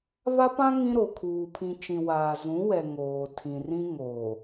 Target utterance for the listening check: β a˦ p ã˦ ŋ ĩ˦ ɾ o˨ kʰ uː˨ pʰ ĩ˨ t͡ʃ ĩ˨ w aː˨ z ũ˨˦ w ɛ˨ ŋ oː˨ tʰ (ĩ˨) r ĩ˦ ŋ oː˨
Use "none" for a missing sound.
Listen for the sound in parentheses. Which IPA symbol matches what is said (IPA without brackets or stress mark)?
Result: ĩ˨